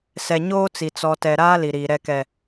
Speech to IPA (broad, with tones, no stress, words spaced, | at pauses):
sɛ˨ ɲoː˦t͡si˨ t͡sɔ˨tɛ˨ ɾaː˦li˨ɾiː˨ ɾɛ˨kɛ˨